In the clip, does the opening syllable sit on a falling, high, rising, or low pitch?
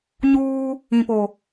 high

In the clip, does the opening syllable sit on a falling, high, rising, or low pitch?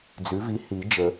rising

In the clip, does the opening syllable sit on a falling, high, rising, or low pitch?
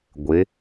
rising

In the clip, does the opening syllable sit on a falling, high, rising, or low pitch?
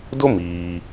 high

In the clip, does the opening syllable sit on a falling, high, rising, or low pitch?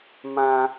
high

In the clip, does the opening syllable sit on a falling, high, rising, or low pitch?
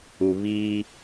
low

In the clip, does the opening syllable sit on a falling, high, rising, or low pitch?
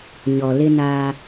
low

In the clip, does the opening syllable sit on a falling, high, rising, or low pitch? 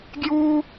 high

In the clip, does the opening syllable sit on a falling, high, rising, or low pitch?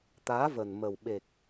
rising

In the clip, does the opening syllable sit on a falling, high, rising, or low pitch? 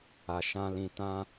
low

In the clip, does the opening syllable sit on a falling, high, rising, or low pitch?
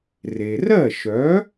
low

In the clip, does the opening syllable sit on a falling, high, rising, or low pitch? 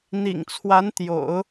low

